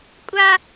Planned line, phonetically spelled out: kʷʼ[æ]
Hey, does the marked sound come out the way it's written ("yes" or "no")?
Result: no